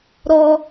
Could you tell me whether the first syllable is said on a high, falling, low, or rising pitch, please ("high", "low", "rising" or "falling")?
high